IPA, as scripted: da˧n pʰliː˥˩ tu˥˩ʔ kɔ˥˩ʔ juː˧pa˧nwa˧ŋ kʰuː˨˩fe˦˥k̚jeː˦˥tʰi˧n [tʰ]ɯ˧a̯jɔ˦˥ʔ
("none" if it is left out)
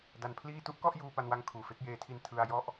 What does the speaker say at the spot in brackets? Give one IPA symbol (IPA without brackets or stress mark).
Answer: tʰ